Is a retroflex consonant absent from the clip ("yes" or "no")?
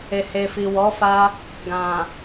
yes